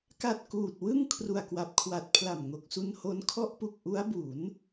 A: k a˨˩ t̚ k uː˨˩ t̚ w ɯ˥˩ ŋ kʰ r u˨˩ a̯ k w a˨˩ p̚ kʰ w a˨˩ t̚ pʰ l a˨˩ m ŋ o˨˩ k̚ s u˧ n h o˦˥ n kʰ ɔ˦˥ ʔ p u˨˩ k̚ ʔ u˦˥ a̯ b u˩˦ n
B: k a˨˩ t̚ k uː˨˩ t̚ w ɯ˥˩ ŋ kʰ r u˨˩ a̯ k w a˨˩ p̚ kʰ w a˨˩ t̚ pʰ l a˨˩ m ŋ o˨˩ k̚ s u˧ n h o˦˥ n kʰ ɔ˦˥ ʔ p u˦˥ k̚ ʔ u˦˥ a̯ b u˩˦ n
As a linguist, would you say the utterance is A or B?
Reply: A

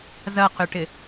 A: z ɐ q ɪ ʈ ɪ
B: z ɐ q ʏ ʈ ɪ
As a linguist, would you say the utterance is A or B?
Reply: B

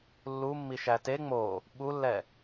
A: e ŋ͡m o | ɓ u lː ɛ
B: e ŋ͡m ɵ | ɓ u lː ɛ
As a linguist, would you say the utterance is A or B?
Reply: A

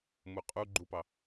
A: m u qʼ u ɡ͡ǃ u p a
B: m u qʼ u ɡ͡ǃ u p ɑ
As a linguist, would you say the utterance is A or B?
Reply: B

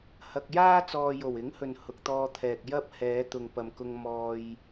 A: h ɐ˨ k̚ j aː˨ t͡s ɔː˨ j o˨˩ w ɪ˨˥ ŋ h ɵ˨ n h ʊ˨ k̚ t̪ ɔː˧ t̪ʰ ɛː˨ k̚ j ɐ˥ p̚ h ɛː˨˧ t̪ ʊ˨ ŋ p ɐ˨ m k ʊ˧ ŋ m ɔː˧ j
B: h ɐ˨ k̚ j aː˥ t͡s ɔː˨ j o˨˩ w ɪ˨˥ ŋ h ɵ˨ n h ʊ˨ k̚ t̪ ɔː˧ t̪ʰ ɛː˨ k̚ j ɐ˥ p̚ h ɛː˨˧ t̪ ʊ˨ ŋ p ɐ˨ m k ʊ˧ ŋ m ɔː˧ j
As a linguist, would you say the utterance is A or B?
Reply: B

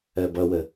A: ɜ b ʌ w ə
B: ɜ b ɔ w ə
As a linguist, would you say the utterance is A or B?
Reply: A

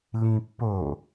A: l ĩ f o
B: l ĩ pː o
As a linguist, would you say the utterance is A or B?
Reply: B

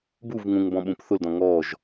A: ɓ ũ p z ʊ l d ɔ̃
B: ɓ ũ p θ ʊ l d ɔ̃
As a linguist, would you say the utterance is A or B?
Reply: B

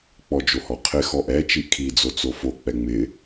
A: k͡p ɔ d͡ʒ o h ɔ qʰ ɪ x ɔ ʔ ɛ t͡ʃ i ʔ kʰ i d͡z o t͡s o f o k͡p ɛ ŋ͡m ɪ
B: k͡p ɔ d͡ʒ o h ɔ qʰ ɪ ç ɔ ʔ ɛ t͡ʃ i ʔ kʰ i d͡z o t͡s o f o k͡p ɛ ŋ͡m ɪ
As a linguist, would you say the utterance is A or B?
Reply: A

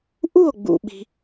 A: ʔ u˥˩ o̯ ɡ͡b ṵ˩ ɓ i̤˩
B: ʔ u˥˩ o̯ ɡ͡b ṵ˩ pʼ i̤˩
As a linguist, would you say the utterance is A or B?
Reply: A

